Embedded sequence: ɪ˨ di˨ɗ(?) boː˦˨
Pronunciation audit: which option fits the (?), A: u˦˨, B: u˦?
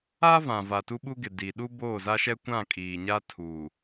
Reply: B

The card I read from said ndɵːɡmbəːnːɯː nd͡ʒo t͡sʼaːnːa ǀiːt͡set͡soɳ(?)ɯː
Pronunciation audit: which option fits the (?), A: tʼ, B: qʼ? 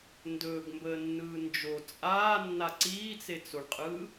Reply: B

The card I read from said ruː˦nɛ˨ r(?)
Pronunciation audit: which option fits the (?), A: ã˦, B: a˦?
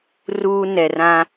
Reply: A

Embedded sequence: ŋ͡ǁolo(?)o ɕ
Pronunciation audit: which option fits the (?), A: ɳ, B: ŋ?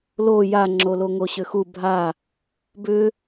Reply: B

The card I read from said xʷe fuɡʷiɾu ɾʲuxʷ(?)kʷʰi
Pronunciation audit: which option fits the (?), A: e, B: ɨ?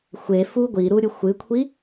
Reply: B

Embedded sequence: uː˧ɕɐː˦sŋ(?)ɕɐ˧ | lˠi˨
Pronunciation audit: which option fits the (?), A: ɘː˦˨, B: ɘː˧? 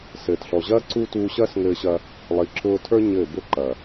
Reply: B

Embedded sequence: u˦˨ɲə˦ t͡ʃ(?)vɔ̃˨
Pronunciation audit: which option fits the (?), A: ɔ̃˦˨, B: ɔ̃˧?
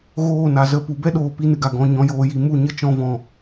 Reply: B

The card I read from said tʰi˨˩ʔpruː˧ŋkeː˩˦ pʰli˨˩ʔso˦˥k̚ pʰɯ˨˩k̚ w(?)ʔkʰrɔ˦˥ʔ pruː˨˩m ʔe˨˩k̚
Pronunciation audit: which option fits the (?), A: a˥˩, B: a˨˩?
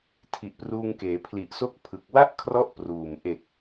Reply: A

